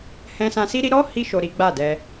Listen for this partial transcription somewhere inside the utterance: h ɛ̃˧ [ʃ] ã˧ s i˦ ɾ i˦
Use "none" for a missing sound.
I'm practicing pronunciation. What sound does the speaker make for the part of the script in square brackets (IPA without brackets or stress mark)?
s